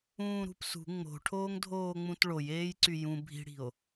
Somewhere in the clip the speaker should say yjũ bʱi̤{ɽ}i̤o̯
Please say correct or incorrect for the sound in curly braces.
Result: correct